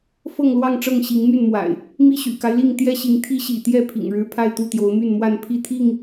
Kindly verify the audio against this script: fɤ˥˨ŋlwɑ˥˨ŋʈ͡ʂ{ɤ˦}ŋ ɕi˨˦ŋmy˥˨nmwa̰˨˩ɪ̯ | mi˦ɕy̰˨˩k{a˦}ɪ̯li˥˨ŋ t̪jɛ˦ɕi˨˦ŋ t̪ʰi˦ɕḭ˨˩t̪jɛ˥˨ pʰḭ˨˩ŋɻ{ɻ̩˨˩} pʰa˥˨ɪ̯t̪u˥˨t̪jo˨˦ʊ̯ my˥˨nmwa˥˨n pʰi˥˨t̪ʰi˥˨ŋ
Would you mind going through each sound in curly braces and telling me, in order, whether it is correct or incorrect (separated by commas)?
incorrect, correct, incorrect